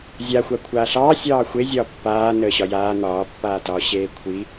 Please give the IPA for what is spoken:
zʲaxʷa kʷʰaːɬɑːsʲɑː xʷezʲɒː pːaː nəːɕɒjaː n̪ɒːpːaːtɒː ɕeːkʷʰi

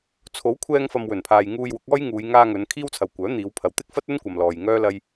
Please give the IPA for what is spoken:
t͡sʰo˨˥wkʷʰɛː˧ŋfɐ˨m wɵ˨˩npʰaː˨j ŋuː˧jwʊ˨˥k̚ ɔː˥jŋuː˨˧j ŋaː˧ŋɵ˨˧n kʰiː˥wt͡sʰɐ˨wkʷœː˨˥ n̪iː˨˧wpʰɐ˨w t̪ɪ˥k̚fɐ˥t̚ɵ˥n kʷɐ˨mlɔː˨j ŋœː˥ lɐ˧j

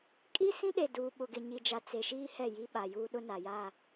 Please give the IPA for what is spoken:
kʼi˦ sĩ˦ɗe˨ duː˨ ɓʊ˨ɡɪ˨ɲi˨ d͡ʒa˨ t͡se˨ʃiː˦ hɛ˦˨ji˦ɓa˨juː˦ ɗʊ˦na˨jaː˦˨

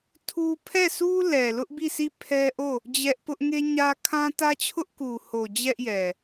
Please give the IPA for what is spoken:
tʰu˦ pʰɛ˦˨sʰu˦lɛ˨lʊ˦ʔ bi˦˨sʰi˦˨ pʰɛ˦ʔo˦˨ | d͡ʑɛ˦ʔ pʊ˦ʔŋe˦ɲä˦ kʰã˦tä˦t͡ɕʰʊ˦ʔ ku˨ho˨ d͡ʑɛ˦ʔjɛ˨

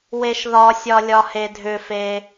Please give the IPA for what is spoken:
weʃðɒsʲɒ lʲɒhedʱʏfe

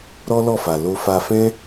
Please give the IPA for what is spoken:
ɾɔ˦lɔ˦˨fa˨ lo˧fa˧ fɛ̃˦

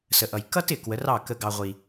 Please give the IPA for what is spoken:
sə˨ʔʌ˨j kʌ˦tɪ˨ kwə˨˦rɑ˦˨ kə˦ɡɑ˦ʁʷi˦

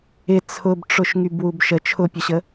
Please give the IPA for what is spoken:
ɪ t͡sʰʊbʈ͡ʂʊʃ ŋybwubʃə t͡ʃʰʊpʲəɕə

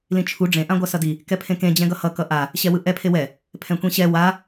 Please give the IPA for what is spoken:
lĩt͡ʃʰu ɖ͡ʐẽ ʔãɡʷasʌdi | kɛpʰẽkẽ d͡ʑɛ̃ɡʌhʌ kʌʔa | ɕɛwɯʔɛ pʰewɛ | pʰɛ̃kʷẽɕɛ wa

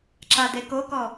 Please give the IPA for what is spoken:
ǁadekokɔ

